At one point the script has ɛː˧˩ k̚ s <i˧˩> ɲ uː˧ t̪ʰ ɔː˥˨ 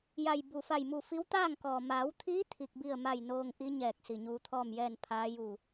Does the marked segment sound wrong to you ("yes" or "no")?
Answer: no